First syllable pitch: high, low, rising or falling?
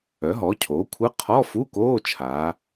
rising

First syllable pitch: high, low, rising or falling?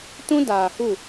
high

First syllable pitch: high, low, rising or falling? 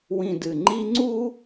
low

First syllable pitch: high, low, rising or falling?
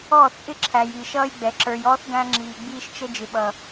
falling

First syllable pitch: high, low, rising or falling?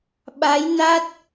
rising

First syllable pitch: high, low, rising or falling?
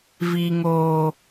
high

